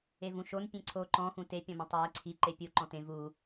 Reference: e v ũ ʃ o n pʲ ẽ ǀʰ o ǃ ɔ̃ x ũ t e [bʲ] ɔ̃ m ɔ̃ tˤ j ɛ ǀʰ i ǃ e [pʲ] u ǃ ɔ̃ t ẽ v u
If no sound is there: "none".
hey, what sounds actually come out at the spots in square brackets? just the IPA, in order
pʲ, pʲ

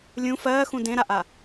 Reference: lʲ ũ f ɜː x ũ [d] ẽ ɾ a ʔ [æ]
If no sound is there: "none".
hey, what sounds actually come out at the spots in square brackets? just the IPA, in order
d, a

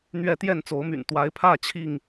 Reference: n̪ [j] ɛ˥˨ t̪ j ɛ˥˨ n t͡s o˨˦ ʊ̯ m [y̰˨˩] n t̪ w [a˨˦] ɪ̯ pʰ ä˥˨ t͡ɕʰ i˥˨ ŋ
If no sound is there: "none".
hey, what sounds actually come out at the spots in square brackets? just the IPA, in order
ɥ, y̰˨˩, a˨˦

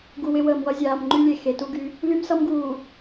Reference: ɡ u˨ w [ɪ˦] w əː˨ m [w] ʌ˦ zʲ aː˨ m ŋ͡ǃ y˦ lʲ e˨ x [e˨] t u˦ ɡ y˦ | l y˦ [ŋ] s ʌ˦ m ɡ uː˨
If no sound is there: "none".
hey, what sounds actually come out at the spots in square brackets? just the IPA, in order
ɪ˦, w, e˨, m

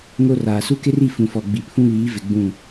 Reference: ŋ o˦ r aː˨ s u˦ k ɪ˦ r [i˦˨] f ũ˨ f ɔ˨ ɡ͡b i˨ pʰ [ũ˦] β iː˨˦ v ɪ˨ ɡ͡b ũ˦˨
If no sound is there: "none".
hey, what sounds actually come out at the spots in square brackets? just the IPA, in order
i˦˨, ũ˦

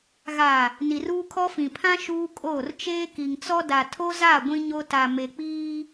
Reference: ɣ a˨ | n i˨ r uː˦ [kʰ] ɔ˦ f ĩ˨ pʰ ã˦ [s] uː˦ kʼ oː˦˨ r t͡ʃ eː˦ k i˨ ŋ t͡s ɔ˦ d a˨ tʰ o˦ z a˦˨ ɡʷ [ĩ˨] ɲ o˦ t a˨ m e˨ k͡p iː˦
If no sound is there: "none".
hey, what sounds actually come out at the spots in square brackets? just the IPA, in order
kʰ, ʃ, ĩ˦

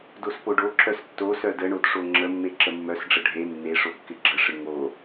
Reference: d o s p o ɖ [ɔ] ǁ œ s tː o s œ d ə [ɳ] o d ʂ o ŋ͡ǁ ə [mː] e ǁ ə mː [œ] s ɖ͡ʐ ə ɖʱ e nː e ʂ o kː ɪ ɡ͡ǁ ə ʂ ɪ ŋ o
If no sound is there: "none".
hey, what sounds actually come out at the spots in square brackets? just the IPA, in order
o, ɳ, mː, œ

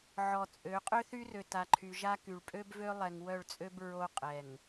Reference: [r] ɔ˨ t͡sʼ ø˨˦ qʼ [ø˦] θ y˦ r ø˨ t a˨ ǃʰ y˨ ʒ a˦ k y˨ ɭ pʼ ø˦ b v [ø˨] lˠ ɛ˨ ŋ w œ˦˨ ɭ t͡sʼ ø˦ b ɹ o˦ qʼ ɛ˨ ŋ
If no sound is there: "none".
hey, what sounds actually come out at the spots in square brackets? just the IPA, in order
ʕ, ø˦, ø˦

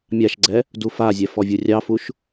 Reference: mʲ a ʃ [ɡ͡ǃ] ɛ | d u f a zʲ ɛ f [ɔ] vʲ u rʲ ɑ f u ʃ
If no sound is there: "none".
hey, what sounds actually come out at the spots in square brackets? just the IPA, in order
ɡ͡ǀ, ɔ

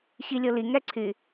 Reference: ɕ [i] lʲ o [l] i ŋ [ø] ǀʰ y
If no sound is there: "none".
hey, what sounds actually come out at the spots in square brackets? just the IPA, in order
i, l, ɛ

